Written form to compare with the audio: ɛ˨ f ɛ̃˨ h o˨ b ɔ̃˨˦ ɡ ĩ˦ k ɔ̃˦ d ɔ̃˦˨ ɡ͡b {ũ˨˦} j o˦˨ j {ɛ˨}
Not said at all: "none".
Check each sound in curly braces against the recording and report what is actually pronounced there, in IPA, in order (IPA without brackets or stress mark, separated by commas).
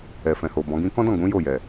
ũ˨˦, ɛ˨